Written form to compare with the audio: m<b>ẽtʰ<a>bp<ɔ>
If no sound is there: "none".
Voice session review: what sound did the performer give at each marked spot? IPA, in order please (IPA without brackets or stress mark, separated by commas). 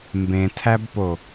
b, æ, o